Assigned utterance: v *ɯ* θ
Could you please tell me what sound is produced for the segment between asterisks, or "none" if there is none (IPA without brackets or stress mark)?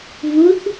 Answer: u